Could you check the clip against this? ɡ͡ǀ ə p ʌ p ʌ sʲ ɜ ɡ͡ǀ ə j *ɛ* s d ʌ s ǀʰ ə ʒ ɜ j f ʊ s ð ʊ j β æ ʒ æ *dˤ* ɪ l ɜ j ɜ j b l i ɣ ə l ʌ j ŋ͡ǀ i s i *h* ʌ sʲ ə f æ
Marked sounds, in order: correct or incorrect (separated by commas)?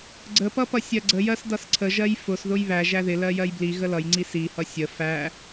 incorrect, incorrect, correct